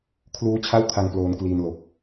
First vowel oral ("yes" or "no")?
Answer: yes